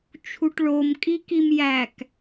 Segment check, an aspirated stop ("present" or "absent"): present